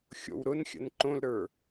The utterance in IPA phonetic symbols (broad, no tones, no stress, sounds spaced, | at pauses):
xʲ o̰ w ɾ ʊ n xʲ ə̰ n ǃ õ l ɾ ə˞